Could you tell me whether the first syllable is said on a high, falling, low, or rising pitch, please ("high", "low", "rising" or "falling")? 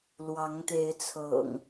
rising